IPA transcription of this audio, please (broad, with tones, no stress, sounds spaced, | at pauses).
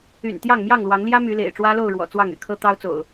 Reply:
y̰˨˩ n t̪ j ɑ˥˨ ŋ m j ɑ˥˨ ŋ l w ɑ˨˦ ŋ l j ä˦ m y˨˦ l ḛ˨˩ ɪ̯ ʈ͡ʂ w ä˦ l o˥˨ ʊ̯ ɻ w ɔ̰˨˩ t͡s w ɑ˥˨ ŋ y̰˨˩ kʰ ɤ˦ t̪ ɑ˦ ʊ̯ t͡s o̰˨˩ ʊ̯